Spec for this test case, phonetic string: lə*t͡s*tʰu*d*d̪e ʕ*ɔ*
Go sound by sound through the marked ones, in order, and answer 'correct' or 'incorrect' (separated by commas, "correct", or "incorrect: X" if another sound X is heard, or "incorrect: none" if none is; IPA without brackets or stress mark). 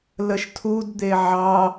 incorrect: ʃ, correct, incorrect: ɑ